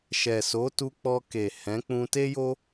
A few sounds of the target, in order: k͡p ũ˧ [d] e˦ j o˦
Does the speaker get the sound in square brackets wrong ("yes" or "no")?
yes